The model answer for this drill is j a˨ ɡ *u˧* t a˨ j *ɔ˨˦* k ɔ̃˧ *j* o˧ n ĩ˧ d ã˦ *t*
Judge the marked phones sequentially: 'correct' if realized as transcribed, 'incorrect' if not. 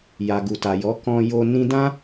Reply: incorrect: u˨, correct, correct, incorrect: none

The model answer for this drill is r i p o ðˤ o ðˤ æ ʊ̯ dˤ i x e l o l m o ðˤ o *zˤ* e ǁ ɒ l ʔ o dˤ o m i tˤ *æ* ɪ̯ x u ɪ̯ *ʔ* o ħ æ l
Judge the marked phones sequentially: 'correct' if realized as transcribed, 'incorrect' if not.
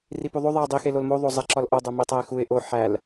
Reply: correct, correct, correct

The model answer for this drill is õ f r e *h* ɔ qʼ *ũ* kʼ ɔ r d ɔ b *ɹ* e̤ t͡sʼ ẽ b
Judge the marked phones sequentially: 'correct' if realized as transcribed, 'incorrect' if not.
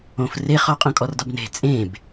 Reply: incorrect: χ, incorrect: õ, incorrect: n

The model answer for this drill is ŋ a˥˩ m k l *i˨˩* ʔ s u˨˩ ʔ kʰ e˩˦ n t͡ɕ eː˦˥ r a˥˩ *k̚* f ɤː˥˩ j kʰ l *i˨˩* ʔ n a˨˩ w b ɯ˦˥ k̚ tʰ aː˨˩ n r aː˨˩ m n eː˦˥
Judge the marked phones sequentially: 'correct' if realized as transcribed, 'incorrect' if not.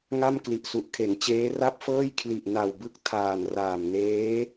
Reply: correct, incorrect: p̚, correct

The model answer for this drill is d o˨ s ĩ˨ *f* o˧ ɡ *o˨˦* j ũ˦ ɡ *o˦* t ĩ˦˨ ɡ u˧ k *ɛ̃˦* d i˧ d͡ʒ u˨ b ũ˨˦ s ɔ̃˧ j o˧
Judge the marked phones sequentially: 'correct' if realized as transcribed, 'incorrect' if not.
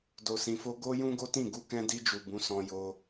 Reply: correct, incorrect: o˦, correct, incorrect: ɛ̃˧

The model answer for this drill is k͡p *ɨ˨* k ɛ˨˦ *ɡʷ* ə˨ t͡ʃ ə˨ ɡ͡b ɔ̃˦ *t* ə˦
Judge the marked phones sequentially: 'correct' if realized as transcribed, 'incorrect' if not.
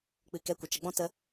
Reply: correct, incorrect: kʷ, correct

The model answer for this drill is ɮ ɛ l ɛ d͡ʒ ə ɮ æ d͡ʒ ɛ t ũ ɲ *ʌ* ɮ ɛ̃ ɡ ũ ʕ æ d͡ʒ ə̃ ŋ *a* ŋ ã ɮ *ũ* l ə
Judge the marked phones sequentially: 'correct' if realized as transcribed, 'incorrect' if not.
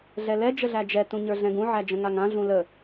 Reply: incorrect: ə˞, correct, correct

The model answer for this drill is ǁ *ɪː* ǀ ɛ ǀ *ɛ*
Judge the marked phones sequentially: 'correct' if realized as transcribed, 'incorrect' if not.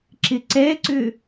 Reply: incorrect: ɪ, incorrect: ʏ

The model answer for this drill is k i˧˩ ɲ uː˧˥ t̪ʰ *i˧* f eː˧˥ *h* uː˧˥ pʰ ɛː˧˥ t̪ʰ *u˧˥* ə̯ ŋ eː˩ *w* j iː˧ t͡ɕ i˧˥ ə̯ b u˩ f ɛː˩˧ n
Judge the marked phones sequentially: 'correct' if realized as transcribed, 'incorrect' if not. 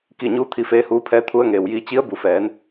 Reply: correct, correct, incorrect: u˧, correct

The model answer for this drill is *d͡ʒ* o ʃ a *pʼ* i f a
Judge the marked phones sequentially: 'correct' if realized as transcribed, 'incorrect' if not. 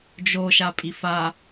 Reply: correct, correct

